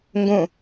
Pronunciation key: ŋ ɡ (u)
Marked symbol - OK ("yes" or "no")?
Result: no